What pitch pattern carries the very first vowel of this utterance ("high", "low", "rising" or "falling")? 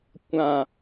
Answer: low